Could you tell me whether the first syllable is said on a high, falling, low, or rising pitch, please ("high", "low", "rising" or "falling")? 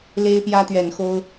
high